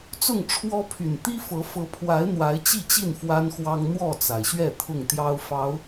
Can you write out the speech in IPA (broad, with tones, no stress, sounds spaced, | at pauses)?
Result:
t͡s ʊ˥˨ ŋ ʈ͡ʂʰ w ɔ˦ pʰ y˨˩ n t̪ i˦ f ɤ˨˦ f ɤ˨˦ pʰ w a˨˦ ɪ̯ n̪ w a˨˦ ɪ̯ t͡ɕ i˥˨ t͡ɕ i˥˨ n f w a˦ n x w ɑ˦ ŋ n̪ w ɔ˥˨ t͡s a˩ ɪ̯ ɕ ɥ ɛ˥˨ t̪ʰ ʊ˥˨ ŋ t̪ j ɑ˦ ʊ̯ f ɑ˨˦ ʊ̯